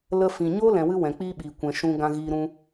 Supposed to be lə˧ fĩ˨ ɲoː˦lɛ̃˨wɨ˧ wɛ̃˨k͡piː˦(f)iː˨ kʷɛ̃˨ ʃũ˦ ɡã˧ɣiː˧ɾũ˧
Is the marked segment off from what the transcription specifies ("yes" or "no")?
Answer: yes